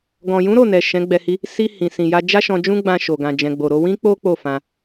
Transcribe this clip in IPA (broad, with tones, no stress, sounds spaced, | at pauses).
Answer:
ɡ ɔ̃˨ j ũ˨˦ ɾ o˦˨ n ɛ˨ ʃ ɛ̃˨˦ ɡ͡b ɛ˧ h i˦ | s i˧ h ĩ˨ s ĩ˨ j a˧ d͡ʒ a˦ ʃ ɔ̃˧ d͡ʒ ũ˦ ɡ͡b ã˧ ʃ o˨ ɡ ã˨ d͡ʒ ɛ̃˨ ɡ͡b o˨ ɾ o˧ w ĩ˦ k͡p o˦ k͡p o˦˨ f ã˧